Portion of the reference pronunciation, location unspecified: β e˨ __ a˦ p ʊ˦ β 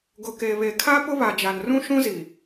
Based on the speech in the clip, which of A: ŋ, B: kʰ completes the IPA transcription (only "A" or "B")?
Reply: B